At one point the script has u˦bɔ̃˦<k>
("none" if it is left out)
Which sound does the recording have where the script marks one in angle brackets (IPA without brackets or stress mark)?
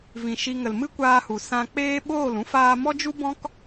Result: k